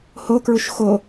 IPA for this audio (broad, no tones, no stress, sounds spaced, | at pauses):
h o k ɹ u ʃ x o